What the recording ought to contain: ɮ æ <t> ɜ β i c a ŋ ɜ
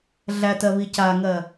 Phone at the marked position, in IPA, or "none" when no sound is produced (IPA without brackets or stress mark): t